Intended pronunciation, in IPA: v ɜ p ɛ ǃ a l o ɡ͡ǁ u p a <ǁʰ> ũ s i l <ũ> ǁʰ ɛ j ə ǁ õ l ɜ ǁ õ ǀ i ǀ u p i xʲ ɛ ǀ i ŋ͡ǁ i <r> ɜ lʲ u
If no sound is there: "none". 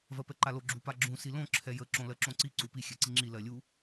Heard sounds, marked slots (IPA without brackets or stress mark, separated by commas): ɡ͡ǁ, õ, l